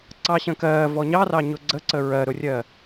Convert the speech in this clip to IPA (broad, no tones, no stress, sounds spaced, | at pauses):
ǀ ɑ ɕ ə̃ k ɜː v ɔ ɲ ɑ r ɑ ɲ ʊ ɡ͡ǀ ə ǀ ə ɹ ɜ ɾ ʊ rʲ ɜ